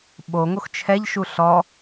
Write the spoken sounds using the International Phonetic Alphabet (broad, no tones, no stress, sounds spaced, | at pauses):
ɓ o ŋ o x t͡ʃʰ ɛ ʎ ʃ u ɬ ɔ